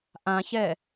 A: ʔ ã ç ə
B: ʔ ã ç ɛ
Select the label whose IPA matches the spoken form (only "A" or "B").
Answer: B